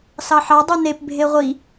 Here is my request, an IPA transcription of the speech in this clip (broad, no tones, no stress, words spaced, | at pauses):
sɑħɑ dˤunep bʱeʁʷi